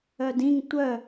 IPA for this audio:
œdĩŋ tʷœ

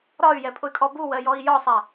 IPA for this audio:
ɾɒy̯jɛpʼʊy̯kʼɔ buwɜjɔi̯ jɒsˤæ

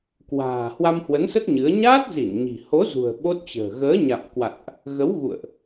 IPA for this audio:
kwa̤ː˨˩ hwa˧mhwə˨˦nsə˦˥t̚ ɲɨ˨˦ə̯ ɲaː˦˥t̚zi˧˩n ɲi̤˨˩ ho˨˦ zṳ˨˩ə̯ ɓo˦˥t̚t͡ɕə̤ː˨˩ ɣəː˨˦ɲa̰˧˨mkwa̰˧˨nʔ | ɣə˨˦wɣṵ˧˨ə̯ʔ

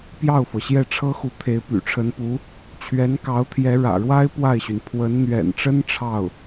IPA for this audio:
pjɑ˥˩ʊ̯fɤ˩ ɕjɛ˥˩ʈ͡ʂʰɤ˥xu˧˥ t̪ʰe˧˥ɪ̯py̰˨˩ʈ͡ʂʰə˧˥npu˧˥ | t͡ɕʰɥɛ˧˥nkɑ˧˥ʊ̯ t̪ʰjɛ˧˥ɻä̰˨˩ɻwa˥ɪ̯ pwa˥˩ɪ̯ɕy˩n pʰwə˧˥nn̪ɥɛ̰˨˩nʈ͡ʂə˥n ʈ͡ʂʰɑ˥˩ʊ̯

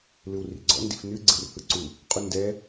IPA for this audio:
lɯwrḭɡ͡ǀɔ̰ ndḭfnɨ ɡ͡ǀɯrhɯǀu | qʼundɛ

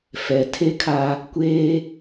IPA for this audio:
fɛ˨tʰe˦kʰa˦ | kʷeː˦

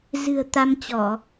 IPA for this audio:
zɨ̤˨˩ə̯t̪a˧mt͡ɕɔ˧˩˨

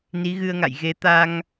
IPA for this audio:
ni˨˦ɣɨ˧ə̯ŋa̰˧˨j ɣe˨˦ t̪a˧ŋ

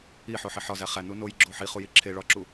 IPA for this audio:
iħoħi ħɒzæ χænu nojɡ͡ǁo ħiχuji ǁʰe ɭɒǁu

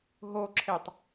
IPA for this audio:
ɦoǁʰetˤ

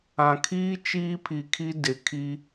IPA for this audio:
ã˨kʰiː˦ t͡ʃiː˦pʰi˨kʰi˦ dɪ˨kʰi˦

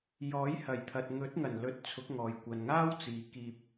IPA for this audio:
jɔː˨˥jhɐ˨˩jt̪ʰɐ˨t̚ ŋɵ˨˥t̚ŋɐ˨˩n lɵ˨˥t̚ t͡sʰʊ˨˥k̚ŋɔː˨j kʷɐ˨nŋaː˥wt͡siː˨ kiː˧p̚

